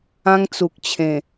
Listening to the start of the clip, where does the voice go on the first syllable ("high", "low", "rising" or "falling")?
high